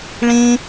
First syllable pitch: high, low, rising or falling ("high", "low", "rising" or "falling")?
high